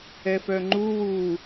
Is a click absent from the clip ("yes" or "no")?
no